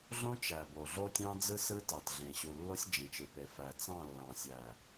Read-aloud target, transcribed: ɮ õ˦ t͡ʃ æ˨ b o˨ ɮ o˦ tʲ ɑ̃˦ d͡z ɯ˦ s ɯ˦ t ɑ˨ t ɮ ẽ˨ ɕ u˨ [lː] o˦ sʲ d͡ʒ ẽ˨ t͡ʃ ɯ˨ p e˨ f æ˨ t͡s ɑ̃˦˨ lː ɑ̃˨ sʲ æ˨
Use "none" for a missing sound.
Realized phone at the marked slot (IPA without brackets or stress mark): lː